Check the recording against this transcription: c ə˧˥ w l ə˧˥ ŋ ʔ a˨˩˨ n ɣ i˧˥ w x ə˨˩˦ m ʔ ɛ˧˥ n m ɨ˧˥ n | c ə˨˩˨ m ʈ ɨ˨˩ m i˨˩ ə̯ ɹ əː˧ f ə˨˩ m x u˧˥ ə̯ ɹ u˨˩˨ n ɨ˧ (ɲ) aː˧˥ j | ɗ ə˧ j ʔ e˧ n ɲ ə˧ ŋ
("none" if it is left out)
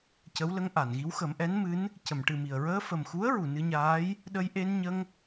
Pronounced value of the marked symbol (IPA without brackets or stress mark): ɲ